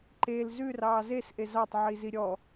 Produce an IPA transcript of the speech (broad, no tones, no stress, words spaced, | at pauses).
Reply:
ǃel zʉrɑː zesʔe zɑtˤʕizi ɾʲɔ